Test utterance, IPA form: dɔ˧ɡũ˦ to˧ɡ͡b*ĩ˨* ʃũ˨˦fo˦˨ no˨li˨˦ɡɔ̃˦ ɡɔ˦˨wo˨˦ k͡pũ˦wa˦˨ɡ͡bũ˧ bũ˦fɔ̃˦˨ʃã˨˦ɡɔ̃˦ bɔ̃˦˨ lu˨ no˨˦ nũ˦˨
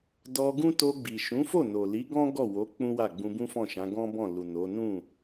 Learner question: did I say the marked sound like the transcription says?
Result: no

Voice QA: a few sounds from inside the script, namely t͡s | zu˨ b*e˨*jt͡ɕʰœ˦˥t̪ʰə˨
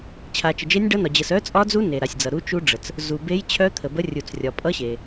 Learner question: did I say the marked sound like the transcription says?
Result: no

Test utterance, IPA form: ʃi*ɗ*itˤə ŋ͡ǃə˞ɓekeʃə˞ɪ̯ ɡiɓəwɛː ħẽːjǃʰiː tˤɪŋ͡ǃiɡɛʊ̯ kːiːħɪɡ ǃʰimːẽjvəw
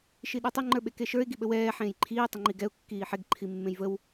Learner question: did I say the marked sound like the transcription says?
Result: yes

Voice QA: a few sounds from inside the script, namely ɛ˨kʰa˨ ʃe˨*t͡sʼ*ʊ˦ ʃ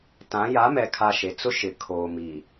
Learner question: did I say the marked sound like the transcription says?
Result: no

